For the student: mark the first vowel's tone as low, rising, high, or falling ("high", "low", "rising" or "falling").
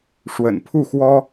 low